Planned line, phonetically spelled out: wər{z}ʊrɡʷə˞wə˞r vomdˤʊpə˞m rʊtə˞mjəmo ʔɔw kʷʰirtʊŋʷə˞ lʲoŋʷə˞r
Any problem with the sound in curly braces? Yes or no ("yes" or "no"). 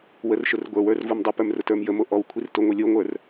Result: yes